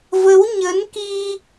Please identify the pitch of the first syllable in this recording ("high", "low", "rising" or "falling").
rising